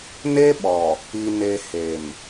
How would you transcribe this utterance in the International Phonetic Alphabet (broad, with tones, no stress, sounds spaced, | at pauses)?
n e˦ ɓ ɔ˨ | i˨ n e˨ h e˨ m